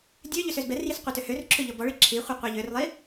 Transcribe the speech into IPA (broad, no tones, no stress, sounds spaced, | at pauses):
dʲ ø ʎ ø s ø z b ɛ r j i s qʷ i t ø h ø r ǁʰ ø ʎ ɔ b ɔ ɭ i ǁʰ i χʷ i qʷ i ʎ ø r lˠ i